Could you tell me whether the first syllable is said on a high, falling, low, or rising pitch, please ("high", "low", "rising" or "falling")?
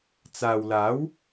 low